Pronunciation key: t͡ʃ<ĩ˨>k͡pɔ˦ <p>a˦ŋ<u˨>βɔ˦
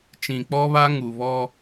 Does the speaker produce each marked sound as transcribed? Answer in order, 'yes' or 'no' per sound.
yes, no, yes

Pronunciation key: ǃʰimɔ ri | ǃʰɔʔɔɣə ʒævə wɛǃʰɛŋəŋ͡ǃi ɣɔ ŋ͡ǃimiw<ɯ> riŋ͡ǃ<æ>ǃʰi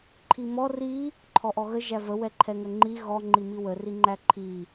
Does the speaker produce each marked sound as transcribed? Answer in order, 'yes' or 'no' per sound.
no, yes

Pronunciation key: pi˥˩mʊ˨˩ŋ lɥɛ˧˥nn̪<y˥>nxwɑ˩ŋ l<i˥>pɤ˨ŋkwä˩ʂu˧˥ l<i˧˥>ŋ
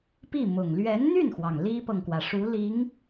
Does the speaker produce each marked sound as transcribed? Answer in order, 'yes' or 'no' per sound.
no, yes, yes

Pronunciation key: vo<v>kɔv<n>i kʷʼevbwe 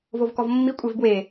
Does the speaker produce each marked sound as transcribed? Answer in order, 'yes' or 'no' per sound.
yes, no

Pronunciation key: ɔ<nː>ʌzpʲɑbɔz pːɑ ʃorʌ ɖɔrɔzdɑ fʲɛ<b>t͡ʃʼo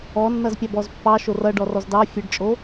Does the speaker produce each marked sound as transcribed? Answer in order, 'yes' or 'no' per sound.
yes, no

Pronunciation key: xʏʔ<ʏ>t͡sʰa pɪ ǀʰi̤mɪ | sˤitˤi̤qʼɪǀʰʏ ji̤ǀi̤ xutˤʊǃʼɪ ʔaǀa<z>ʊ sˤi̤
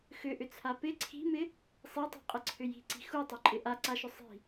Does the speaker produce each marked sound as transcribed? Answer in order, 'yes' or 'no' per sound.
yes, no

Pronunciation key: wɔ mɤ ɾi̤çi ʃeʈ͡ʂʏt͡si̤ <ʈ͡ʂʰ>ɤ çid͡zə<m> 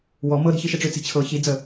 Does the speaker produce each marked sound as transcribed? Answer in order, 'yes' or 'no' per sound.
no, no

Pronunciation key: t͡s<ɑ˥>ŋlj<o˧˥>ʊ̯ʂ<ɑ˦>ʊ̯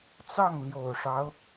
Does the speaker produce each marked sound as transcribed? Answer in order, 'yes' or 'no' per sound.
no, no, yes

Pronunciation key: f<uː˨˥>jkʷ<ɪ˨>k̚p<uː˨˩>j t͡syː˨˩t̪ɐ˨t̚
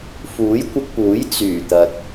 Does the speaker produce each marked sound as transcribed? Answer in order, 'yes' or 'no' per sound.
yes, no, no

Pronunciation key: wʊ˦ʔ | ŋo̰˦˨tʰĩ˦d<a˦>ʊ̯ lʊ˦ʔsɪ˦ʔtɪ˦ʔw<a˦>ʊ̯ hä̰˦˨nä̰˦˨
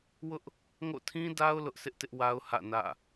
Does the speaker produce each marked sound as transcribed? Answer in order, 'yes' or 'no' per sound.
yes, yes

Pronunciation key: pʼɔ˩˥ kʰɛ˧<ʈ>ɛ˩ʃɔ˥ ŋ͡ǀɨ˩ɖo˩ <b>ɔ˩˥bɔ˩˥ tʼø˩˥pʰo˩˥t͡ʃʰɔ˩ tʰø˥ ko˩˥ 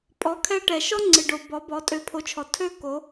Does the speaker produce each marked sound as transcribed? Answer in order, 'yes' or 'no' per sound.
yes, yes

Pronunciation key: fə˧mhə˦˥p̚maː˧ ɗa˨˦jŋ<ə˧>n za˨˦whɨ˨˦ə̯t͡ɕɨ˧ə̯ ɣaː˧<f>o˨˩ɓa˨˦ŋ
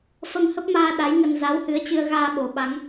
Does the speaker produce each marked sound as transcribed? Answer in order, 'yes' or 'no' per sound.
yes, no

